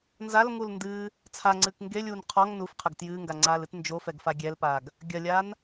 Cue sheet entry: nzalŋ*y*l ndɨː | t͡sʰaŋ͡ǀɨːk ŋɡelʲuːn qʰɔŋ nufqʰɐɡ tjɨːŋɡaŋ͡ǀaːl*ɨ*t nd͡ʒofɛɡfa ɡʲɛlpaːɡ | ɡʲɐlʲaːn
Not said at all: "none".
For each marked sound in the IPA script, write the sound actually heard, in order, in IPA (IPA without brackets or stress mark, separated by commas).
u, ɨ